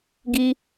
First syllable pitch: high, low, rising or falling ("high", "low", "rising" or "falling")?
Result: high